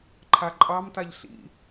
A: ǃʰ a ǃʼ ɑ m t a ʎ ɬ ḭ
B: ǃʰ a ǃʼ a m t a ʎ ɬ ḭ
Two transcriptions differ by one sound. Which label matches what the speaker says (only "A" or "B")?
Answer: A